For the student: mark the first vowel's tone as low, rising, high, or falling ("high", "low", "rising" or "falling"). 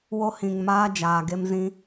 high